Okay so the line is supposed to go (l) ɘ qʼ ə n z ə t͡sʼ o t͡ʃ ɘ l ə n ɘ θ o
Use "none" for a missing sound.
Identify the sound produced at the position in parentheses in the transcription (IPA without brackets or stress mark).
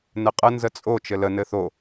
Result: n